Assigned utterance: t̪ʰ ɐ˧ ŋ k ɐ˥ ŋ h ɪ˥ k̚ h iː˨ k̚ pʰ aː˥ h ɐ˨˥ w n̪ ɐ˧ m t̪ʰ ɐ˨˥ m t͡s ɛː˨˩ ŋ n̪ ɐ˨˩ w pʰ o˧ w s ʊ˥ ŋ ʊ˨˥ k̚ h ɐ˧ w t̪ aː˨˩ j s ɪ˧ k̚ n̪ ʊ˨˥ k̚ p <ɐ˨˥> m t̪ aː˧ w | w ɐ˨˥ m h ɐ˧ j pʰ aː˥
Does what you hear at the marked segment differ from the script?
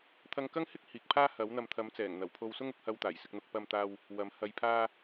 yes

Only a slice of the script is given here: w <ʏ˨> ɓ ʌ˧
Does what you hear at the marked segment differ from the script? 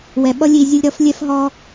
yes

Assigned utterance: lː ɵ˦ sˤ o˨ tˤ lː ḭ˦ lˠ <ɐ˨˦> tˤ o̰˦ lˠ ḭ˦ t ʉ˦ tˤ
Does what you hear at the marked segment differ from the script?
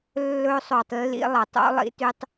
no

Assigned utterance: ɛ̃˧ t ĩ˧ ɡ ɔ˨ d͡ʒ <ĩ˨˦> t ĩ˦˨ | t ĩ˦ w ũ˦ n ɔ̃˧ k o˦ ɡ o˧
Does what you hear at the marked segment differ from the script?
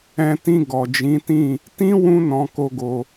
no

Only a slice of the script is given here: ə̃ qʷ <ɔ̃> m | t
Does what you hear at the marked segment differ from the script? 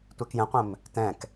yes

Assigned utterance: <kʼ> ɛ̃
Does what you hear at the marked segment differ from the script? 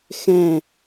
yes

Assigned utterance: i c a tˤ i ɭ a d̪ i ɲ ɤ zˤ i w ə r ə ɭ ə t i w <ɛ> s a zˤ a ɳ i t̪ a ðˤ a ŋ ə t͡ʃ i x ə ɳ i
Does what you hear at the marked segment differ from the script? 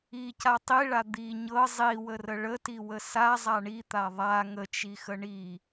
yes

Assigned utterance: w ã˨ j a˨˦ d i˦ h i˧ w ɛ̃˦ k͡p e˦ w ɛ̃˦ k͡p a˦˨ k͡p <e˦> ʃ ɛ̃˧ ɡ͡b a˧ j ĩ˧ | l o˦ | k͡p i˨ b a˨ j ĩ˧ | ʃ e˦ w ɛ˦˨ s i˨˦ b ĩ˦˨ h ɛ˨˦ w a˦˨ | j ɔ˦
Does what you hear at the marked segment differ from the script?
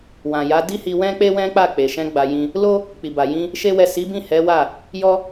yes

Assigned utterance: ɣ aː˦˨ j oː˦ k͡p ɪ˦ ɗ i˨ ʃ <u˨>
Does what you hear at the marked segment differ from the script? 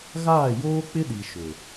yes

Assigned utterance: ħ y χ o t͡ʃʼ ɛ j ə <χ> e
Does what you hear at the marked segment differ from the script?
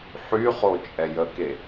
yes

